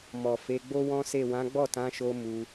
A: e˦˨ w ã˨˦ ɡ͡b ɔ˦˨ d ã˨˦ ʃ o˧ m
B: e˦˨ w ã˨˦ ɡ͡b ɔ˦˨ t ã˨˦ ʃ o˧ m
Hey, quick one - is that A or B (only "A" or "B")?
B